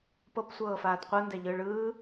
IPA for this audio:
p ɤ p sʷ ɤː f aː d qʷ ɤ n d ɛ ʎ ɯː ɭ ɯː

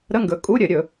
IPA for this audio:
ɾ ə˧˥˧ ŋ ɡ ɵ˩˥ kʼ u˧˥˧ ɾʲ ɘ˧˩˧ ɾʲ ɵ˧˩˧

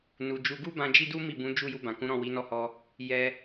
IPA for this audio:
n u˧ d͡ʒ u˦ ɡ u˦ b ã˧ d͡ʒ i˦ d u˦ m i˦˨ b ũ˨˦ d͡ʒ u˦˨ j u˧ b ã˨ k ũ˨˦ ɾ ɔ̃˦˨ w i˨˦ n ɔ˦˨ h ɔ˧ | j ɛ˧

